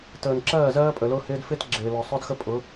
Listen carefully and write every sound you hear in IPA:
təː˨nǁɜː˦˨ zɜː˦pʼə˨ lʊː˦hɪː˦d fɪː˦t ɡ͡ǁɪː˨lɔ˨ sˤʊ˦dxə˦ pʼʊ˨˦

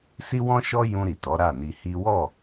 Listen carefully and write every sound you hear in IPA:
si˦wɔ̃˦ʃɔ˦ jũ˧ɾi˨ tɔ˨˦ɾa˦˨ni˧hi˦ wɔ˦˨

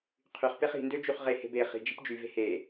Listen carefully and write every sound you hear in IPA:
qʰyχ peχi̤ndø d͡ʒyχʁehe̤b e χi̤d͡ʒi̤p d͡ʒyve̤ he

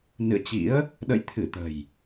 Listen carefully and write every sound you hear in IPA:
nɨ̰˧˨ə̯t͡ɕḭ˧˥ə̯ | ɗə̰˧˨j t̪ʰɨ˧˩t̪ə̤˨˩j

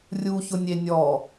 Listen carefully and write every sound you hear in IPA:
rʲuçʊnʲe nʲɔ

